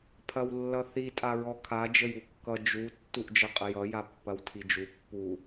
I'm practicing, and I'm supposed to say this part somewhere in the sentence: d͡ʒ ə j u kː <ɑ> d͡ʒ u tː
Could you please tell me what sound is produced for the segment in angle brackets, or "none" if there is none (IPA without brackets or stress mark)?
ʌ